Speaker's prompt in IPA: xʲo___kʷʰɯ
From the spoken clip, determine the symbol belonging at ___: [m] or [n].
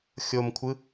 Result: m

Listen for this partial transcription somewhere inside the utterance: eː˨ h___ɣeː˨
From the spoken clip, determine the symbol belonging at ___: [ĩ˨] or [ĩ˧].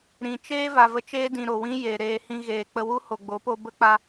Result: ĩ˧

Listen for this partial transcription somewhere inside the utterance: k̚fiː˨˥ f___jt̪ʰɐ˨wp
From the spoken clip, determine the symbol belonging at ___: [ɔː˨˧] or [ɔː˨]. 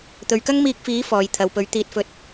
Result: ɔː˨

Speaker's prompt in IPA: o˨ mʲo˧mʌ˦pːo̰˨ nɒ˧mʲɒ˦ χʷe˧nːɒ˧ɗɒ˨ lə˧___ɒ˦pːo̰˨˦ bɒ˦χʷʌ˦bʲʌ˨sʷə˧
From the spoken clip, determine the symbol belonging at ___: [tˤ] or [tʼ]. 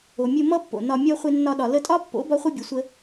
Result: tʼ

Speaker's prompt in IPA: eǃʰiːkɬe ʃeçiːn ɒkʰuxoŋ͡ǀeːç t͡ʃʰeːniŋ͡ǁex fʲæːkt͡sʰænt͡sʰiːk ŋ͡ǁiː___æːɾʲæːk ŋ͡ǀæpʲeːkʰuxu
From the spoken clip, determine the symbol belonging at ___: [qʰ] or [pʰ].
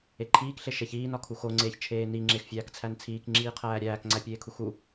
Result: qʰ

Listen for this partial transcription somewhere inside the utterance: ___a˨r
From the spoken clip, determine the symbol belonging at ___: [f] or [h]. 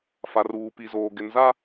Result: f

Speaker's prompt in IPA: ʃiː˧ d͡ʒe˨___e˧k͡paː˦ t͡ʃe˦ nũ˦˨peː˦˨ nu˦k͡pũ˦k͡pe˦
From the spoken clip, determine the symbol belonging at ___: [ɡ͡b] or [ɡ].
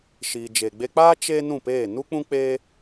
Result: ɡ͡b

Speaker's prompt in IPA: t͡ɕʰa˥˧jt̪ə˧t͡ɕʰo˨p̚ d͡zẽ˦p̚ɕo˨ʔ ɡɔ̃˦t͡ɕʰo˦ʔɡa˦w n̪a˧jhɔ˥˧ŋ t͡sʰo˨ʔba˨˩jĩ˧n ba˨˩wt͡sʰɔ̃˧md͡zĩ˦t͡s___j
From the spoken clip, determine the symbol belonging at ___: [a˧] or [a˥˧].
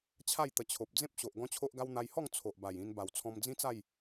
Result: a˥˧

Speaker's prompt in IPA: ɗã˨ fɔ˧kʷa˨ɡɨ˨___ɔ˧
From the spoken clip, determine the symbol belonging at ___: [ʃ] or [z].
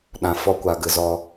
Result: z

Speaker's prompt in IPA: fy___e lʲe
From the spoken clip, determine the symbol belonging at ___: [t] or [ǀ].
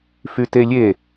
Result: t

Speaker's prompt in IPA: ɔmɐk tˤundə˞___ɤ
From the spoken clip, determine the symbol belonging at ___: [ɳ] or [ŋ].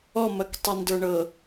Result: ɳ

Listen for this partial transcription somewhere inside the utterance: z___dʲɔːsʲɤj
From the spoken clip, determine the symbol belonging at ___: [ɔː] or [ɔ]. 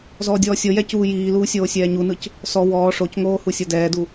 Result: ɔː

